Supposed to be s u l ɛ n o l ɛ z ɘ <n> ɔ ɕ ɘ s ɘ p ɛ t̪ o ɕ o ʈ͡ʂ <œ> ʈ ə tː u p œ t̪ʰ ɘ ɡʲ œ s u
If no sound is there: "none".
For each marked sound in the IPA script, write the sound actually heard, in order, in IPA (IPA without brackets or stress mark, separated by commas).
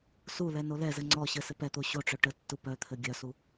ŋ͡ǀ, œ